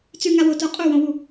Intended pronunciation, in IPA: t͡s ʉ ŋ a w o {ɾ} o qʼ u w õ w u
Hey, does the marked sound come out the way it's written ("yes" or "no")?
no